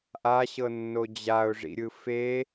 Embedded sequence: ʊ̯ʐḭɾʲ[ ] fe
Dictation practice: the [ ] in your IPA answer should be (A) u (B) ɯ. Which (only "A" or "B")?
B